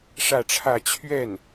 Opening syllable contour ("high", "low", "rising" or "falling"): falling